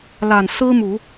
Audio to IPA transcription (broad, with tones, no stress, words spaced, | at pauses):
la˨˩nsɹ̩˥mu˨˩˦